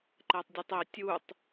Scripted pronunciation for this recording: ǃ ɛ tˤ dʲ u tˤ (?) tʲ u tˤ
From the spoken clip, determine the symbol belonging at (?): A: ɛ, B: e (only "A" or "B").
B